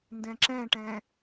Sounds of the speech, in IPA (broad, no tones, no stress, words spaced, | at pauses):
ndɛ̃ǁɛ̃ʈɛ̃